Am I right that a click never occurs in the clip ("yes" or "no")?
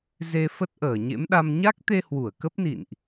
yes